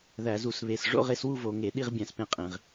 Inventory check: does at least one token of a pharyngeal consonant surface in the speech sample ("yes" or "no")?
no